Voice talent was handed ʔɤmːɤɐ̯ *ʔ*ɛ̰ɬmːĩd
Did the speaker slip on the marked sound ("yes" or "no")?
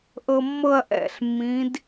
no